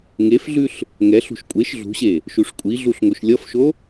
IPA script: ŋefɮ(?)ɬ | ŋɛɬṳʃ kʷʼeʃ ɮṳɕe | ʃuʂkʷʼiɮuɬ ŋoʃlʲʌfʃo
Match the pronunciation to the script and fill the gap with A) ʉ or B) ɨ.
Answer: A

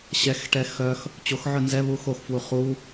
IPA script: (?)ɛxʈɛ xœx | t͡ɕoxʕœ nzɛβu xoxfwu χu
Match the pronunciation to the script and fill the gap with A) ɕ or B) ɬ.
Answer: A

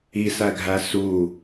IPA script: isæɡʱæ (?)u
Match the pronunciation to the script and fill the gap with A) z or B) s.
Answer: B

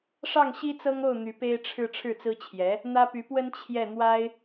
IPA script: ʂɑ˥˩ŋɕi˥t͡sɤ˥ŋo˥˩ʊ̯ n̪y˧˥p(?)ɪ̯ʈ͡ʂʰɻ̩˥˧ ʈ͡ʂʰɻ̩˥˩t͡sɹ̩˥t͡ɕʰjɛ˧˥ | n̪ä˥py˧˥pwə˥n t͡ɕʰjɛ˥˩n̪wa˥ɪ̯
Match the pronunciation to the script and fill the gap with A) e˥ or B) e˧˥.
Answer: A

